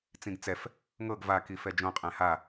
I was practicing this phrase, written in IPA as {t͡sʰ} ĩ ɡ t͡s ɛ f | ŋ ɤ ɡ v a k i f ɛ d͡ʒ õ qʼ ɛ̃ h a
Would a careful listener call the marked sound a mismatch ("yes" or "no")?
yes